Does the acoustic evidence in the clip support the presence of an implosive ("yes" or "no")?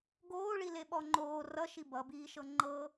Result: yes